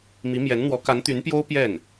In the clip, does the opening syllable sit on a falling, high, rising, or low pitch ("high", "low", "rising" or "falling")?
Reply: rising